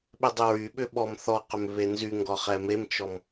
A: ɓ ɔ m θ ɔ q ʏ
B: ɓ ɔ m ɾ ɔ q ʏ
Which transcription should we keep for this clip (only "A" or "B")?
A